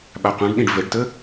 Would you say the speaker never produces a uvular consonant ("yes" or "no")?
no